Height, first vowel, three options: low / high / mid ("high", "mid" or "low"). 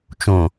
mid